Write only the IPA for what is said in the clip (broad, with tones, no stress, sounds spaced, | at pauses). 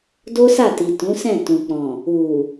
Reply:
d o˦ s a˦˨ t i˨ t ũ˨˦ s ɛ̃˦˨ t ũ˨ k͡p ɔ̃˨ | u˨